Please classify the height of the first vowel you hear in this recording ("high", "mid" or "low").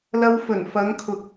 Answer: low